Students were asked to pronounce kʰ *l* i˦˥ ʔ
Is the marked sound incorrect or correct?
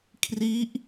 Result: incorrect